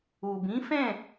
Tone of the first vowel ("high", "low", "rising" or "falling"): low